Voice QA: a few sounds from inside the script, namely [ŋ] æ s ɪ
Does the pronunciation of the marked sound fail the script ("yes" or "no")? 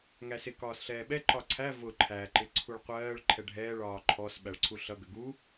no